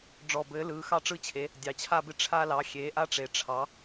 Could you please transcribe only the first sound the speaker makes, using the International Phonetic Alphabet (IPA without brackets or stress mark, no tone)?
ɖ͡ʐ